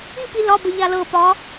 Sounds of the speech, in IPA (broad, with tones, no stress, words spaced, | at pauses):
i˥˨pi˧ lɒ˧˥˧bə˧ʎa˧ lɤ˧˩pɒ˨˥